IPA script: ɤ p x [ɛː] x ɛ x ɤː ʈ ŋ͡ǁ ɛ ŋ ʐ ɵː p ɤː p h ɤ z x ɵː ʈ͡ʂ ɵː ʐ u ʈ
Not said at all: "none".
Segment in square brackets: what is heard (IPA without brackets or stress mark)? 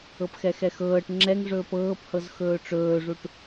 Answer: ɛ